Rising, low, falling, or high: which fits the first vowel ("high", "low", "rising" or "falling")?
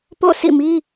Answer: falling